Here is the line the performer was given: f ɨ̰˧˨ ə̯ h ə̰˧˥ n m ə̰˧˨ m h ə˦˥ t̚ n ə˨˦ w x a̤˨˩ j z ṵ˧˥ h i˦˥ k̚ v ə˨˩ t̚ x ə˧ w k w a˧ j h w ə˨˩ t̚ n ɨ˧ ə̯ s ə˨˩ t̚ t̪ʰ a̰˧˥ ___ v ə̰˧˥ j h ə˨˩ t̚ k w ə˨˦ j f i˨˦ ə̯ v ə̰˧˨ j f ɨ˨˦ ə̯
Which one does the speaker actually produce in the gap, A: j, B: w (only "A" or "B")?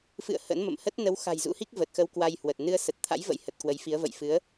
A